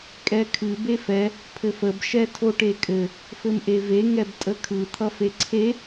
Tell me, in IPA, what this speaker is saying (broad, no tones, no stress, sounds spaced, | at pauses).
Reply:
kʼ ɛ kʰ ɨ b e f ɛ | pʰ ɘ f ə b ʃ ɛ tʰ o ʈ e kʼ ɘ | f ɘ m ʔ e v e ŋ ɛ b tʼ ə kʰ ɯ t̪ʰ ʌ f e ǀʰ e